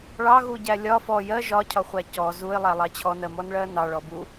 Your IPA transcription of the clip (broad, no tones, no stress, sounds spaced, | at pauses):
ɭ ɑ ɣ u ɟ æ lʲ ɒ f ɔ j ɜ ʒ ɒ cʰ ɒ χʷ æ c ɔ z u ɪ̯ lˠ æ lˠ ɑ t͡ɕʰ ɔ n ɜ m ɔ n ɭ ɜ n ɑ ɭ ɔ b u